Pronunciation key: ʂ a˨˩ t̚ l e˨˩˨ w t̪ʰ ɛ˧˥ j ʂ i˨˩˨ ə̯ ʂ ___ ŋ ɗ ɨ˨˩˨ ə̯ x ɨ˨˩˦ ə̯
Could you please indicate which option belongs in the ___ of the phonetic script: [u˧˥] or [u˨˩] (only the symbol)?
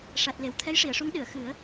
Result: u˧˥